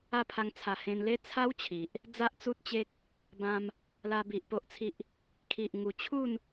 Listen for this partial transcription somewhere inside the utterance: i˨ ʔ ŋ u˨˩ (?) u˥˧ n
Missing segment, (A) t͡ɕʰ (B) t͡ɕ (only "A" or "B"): A